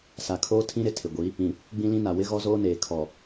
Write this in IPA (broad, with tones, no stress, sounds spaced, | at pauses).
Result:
s a˨ kʰ oː˦ tʰ ĩ˦ ɾ ɪ˨ tʰ ɪ˨ ɡʷ i˨˦ | ĩ˨ | ɡ͡b ĩ˦ l ĩ˦ n a˨ w ɪ˦ ɣ ɔ˦ z oː˦ n eː˨ kʰ ɔ˨